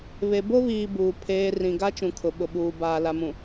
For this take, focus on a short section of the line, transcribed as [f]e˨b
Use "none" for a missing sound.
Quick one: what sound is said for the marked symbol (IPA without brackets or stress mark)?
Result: β